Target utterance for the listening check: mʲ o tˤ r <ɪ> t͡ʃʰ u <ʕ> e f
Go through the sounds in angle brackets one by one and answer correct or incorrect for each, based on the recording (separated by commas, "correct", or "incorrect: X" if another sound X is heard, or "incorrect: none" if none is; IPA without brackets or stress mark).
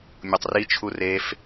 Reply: incorrect: i, incorrect: r